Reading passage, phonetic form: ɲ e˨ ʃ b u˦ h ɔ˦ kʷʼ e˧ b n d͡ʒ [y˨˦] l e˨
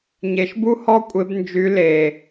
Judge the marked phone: correct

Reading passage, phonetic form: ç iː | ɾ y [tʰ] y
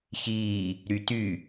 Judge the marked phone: incorrect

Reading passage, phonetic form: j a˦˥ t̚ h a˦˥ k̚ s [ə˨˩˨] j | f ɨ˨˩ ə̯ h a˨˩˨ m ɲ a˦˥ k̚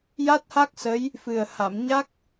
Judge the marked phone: incorrect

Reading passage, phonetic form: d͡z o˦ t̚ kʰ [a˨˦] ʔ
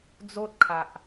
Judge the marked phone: incorrect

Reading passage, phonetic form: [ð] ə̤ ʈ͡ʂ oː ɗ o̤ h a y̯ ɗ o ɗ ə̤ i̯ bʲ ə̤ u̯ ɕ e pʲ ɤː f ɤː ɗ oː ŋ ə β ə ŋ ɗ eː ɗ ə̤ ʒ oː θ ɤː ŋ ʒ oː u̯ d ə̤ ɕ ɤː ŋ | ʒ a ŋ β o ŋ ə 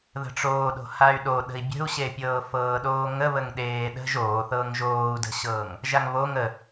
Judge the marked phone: correct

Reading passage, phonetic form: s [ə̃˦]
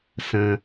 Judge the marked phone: correct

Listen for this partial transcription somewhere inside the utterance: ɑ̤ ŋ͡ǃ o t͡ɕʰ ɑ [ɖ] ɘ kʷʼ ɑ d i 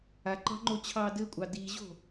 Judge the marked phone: incorrect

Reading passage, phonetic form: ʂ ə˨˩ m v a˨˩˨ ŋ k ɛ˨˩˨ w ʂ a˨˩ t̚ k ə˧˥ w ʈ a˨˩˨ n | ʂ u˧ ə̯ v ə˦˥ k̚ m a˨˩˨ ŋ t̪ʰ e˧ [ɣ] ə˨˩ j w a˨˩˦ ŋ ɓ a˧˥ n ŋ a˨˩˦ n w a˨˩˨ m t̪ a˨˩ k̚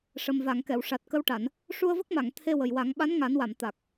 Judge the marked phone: incorrect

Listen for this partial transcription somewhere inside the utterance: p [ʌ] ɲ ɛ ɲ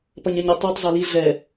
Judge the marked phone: correct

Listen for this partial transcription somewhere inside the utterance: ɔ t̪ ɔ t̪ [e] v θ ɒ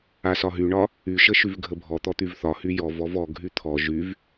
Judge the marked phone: incorrect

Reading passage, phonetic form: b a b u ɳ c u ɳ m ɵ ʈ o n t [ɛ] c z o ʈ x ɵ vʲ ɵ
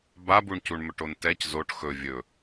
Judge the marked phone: correct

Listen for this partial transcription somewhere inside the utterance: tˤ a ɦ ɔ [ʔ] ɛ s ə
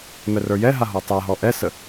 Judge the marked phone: correct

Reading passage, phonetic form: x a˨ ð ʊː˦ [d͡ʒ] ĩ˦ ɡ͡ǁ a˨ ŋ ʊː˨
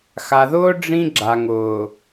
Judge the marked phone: incorrect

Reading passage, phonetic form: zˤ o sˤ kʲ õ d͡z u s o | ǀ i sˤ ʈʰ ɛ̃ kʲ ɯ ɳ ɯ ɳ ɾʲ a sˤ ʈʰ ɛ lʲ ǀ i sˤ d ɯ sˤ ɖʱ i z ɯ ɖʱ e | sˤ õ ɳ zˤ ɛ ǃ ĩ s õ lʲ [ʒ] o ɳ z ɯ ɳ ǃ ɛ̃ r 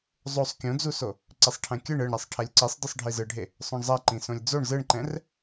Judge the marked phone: incorrect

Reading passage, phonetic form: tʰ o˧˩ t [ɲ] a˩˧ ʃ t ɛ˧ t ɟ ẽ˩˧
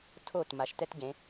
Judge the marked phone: incorrect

